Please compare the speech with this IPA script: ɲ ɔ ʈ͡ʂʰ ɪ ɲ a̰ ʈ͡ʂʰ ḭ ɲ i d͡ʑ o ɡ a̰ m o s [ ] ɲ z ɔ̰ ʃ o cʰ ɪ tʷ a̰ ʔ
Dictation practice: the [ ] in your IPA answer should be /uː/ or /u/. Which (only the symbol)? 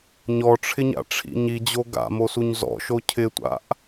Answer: u